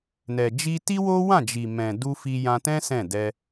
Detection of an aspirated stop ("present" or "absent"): absent